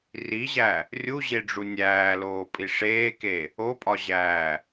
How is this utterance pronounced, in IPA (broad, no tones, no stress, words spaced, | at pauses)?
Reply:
riʑæ | rʲuʑeɖ͡ʐu nʲæːloːpʼi ʂeːke | opʼɒʑæː